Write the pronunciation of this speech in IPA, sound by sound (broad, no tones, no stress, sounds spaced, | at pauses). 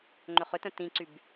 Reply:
ŋ͡ǃ ʏ χ ʏ t œ̃ t ĩ ǀ y b